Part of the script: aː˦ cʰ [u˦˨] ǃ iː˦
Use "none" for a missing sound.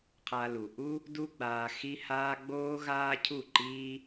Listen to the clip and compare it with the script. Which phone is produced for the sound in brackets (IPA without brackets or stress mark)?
u˦˨